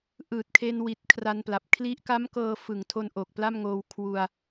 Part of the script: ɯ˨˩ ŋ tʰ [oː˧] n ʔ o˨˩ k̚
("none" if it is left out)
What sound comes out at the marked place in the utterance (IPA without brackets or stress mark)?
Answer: o˧